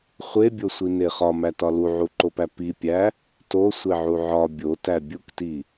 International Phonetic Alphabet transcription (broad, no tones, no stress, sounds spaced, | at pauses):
χʷ e bʲ o sʷ i n e χ ɒ m æ t ɒ l u ʕ u ǃ o p æ p i pʲ æ | t o sʷ e ʕ u ʕ ɒ bʲ o t æ bʲ u k t i